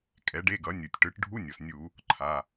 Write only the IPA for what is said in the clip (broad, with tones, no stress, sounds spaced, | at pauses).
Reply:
kʼ ɛ˩˥ ɖ e˧˥˧ ɡ ʌ˩˥ nʲ u˩ tʲ ʈ ɯ˩˥ ʈ ɖʱ u˧˥˧ nʲ o˩ s nʲ u˧˩˧ | ǃʰ a˩˧˩